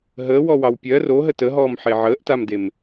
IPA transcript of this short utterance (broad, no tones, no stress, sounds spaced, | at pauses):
ɦ əː w ɔ w ɑ w pʲ ɜ r o ɦ ə t ə ɦ ɔː m ħ e ʕ əː ʔ t a m d e m